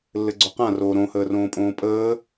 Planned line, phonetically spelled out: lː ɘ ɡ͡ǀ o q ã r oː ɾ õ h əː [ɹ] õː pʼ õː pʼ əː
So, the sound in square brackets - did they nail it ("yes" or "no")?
no